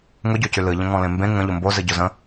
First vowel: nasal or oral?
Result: oral